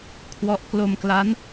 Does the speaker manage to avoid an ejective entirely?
yes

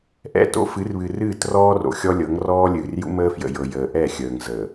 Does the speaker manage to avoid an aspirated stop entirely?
yes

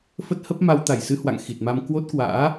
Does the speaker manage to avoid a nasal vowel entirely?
yes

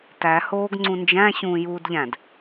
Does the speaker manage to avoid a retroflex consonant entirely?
yes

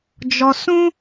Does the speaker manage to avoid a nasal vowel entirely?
no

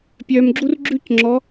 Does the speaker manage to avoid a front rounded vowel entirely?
no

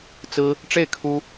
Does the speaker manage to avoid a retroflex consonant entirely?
no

